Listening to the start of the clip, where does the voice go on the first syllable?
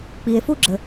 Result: low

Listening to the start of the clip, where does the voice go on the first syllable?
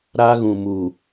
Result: high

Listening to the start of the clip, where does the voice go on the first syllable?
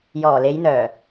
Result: low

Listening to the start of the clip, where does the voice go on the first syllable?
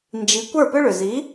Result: rising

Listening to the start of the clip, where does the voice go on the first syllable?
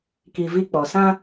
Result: low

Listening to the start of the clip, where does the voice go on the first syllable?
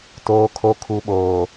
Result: low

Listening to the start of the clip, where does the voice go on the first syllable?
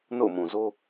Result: falling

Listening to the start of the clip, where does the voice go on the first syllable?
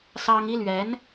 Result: high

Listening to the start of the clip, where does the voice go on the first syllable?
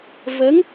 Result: rising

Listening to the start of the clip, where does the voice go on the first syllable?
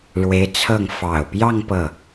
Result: rising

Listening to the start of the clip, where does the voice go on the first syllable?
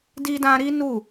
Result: high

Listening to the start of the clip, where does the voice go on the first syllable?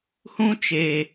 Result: high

